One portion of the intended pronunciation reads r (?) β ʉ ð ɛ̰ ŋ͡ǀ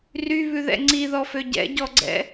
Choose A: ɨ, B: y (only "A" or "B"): B